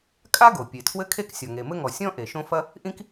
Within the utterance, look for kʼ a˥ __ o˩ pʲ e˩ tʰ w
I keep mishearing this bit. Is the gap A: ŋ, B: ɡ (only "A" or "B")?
B